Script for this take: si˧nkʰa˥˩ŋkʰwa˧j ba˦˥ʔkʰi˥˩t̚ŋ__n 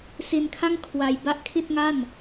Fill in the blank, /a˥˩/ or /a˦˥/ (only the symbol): a˥˩